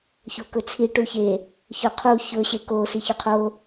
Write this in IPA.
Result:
ç o k ɵ t͡sʰ i ʈ u ç e | ç ɵ qʰ u ç ɵ ɕ e k o s i ç ɵ qʰ o

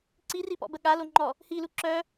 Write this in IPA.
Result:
ǀ i r i p ɔ̰ b ə ɠ a l o ŋ͡ǃ ɔ | h i l u ǁ œ

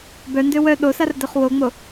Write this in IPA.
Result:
b œ n d ø w œ ɗ o s a r d œ χ w o ŋ͡m o

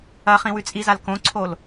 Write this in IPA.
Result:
ɐ χ ĩ w ʉ t͡sʼ i z a l k õ ǀʰ o l

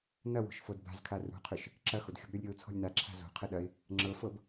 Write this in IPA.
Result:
n ɐ w o̤ ʃ f ɤ d b a̤ z kʰ a r ṳ qʰ ʏ ʃ | ǁ ɐ x o d xʲ ɔ̤ b ɾʲ ɔ lʲ ɾʲ ɤ ʊ̯ t͡sʰ ɔ̤ lʲ n a ǁʰ a̤ z o̤ qʰ ɘ ɗ ɐ ɪ̯ | ŋ͡ǁ ɤ f ɤ b

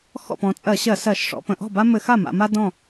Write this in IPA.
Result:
x ɔ̰˥˩ p ɔ̃˩˧ t͡sʼ ɜ˧˩˧ ɕ ɜ˧˩˧ s ɜ˧˩˧ ʃ ʂ ɔ̰˩˧ p ə̃˩˧ ʔ ɔ̤˥˩ b a˥ m ɘ˧˩˧ x a˥˩ m a̰˩˧ m a˥ d ɔ̃˥˩

